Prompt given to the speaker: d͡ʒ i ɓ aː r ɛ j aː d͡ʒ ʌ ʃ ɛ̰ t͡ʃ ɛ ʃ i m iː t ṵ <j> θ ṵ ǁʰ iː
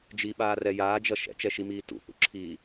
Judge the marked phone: incorrect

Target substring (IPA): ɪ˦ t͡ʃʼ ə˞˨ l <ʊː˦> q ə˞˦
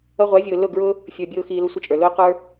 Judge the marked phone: correct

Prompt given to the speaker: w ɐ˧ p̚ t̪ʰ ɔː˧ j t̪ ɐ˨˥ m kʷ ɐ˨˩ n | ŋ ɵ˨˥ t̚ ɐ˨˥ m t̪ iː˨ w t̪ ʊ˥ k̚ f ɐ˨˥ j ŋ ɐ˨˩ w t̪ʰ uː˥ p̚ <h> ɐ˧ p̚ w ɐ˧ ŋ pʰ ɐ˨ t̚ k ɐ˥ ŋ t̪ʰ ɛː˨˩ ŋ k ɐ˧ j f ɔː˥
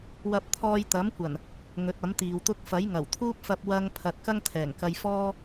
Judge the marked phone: incorrect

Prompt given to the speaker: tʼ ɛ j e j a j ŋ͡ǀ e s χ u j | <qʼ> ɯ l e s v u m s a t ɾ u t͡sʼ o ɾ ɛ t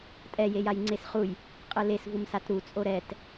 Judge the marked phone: correct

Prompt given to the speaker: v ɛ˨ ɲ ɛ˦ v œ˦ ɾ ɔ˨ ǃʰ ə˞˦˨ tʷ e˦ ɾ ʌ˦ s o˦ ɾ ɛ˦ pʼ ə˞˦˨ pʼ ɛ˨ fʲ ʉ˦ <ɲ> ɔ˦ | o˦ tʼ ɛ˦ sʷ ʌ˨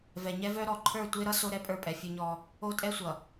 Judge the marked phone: correct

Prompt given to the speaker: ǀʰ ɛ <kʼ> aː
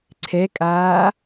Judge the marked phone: correct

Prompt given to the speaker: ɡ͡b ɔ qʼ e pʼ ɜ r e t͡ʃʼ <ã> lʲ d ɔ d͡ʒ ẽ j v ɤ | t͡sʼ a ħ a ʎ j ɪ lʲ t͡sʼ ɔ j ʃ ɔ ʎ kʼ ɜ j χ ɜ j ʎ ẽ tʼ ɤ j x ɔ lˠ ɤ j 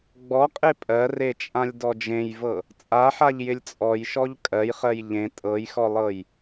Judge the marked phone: correct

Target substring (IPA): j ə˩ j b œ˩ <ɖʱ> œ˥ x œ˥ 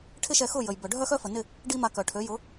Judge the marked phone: correct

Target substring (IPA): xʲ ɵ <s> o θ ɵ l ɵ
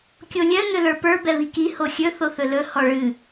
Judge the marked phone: incorrect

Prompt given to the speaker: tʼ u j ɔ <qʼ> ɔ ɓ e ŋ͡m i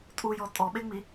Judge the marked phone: incorrect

